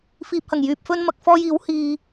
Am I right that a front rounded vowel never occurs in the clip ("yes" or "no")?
no